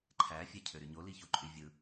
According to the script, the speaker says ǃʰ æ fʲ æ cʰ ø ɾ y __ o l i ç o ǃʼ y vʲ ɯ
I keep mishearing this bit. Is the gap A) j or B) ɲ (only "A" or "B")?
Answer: B